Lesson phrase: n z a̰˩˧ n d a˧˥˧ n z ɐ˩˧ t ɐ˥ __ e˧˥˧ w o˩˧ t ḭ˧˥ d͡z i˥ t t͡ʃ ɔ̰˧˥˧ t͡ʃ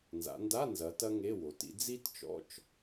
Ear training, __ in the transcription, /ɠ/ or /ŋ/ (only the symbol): ŋ